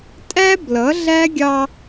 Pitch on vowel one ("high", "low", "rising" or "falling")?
high